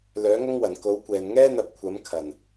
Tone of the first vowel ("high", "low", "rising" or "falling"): rising